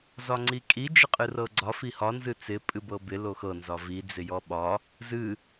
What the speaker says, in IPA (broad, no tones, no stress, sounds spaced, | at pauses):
z ɒ ŋ͡ǀ i kʼ i d͡ʒ ɪ qʼ ɨ r ɤ ɡ͡ǀ ɒ f i h ɒ n z ɨ t͡s ɪ pʼ ɨ b ɤ b ɪ l o x ɤ n z ɒ v i d͡z ɪ j ɔ ɓ ɒ | z ɨ